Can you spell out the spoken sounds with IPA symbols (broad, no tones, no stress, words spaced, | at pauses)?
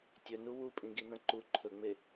tʲɵnu wupʼĩɡinɐ̃ ǃu ǃʰɵŋ͡me